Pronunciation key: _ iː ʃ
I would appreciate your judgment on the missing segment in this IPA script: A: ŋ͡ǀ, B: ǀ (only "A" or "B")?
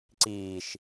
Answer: B